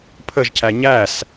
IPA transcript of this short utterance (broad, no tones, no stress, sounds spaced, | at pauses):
pʰ ə ʒ cʰ æ ɲ æ s